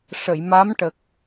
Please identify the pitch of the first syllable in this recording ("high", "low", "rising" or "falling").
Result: low